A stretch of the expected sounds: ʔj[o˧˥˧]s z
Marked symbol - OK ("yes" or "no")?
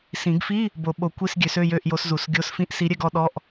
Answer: no